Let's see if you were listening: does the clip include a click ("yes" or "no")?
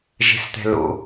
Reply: no